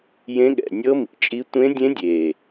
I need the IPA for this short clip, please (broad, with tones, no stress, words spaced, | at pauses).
jẽ˧˥ɠɛ̰˨˩ nʲɤ˧˥mḭ˨˩t͡ʃʼi˧˥ tʷẽ˧˥dʲẽ˧˥dʲe˨˩